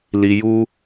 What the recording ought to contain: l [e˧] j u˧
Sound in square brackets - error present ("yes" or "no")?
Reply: yes